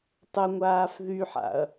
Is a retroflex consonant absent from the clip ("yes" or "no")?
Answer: yes